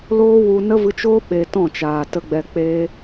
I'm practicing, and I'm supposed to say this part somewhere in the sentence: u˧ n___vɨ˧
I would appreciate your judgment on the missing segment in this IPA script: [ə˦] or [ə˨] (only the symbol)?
ə˦